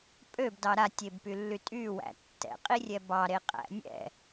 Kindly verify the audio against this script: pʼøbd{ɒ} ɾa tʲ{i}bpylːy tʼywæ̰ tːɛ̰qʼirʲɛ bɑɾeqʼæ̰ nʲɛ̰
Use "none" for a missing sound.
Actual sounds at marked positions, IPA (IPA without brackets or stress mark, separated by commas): ɑ, e